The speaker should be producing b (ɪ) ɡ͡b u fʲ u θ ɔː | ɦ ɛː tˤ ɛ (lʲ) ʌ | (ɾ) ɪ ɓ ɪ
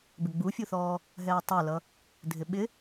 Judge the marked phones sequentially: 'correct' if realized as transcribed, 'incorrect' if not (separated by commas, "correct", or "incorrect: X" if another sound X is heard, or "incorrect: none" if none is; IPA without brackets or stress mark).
correct, incorrect: l, incorrect: dʱ